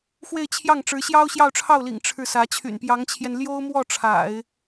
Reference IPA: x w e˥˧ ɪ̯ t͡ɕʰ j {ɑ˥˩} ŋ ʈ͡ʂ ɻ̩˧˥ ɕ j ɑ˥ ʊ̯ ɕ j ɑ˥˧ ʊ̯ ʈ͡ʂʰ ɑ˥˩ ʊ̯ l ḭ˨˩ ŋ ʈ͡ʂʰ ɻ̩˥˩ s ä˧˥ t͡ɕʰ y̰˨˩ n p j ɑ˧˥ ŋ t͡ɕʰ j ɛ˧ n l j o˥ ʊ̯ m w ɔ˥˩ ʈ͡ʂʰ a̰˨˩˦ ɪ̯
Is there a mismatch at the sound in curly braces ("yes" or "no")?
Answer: no